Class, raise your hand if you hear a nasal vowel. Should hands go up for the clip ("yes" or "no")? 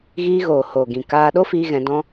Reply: yes